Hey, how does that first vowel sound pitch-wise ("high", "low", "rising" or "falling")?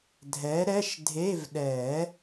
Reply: rising